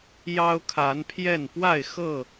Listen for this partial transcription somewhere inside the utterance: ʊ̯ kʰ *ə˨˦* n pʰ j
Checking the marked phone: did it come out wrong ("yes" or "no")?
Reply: yes